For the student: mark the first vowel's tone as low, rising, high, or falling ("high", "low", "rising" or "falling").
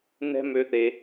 high